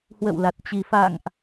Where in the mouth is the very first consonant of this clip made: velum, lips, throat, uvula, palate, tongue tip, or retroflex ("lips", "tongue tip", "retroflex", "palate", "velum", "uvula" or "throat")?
throat